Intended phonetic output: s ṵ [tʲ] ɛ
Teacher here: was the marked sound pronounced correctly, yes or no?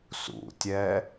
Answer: yes